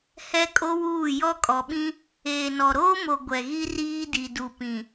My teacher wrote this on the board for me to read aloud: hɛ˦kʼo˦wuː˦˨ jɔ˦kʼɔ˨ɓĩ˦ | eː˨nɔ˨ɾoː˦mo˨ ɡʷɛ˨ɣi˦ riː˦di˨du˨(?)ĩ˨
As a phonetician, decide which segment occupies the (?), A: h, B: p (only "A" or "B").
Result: B